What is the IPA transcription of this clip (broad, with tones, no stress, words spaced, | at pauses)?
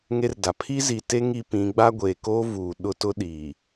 ŋe˦rda˨ pʰi˦zi˨te˦ ŋi˦pĩ˨˦ ɡ͡ba˦ɡʷeː˨koː˦ vuː˨ɗʊ˦tʊ˦ ɗiː˨